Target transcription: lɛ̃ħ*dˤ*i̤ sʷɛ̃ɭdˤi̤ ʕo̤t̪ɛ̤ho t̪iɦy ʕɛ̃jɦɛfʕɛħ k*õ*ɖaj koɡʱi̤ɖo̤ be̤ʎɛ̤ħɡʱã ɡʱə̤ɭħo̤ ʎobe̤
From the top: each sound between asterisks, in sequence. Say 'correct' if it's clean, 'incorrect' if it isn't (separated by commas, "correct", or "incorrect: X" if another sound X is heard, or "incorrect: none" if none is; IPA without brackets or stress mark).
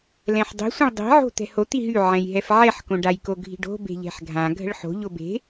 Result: correct, correct